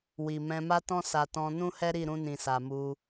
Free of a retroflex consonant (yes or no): yes